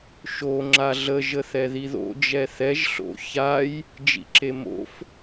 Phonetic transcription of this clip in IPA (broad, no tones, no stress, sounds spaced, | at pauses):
ʃ o ŋ͡ǁ a ɮ ə ʒ ə θ ɛ ð i ð o̰ d͡ʒ ɛ θ ɛ ʒ ɬ o̰ ç a j | d͡ʒ ḭ ǁ e m o̰ f